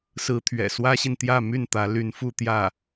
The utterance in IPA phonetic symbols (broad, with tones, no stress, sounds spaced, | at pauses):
s ɹ̩˥ t̪ʰ ɥ ɛ̰˨˩ s w ä˥ ɕ i˨ n t̪ j ä˥˧ m y˥˩ n t̪ ä˧˥ l y˧˥ n f u˥˧ t̪ j ä˥˩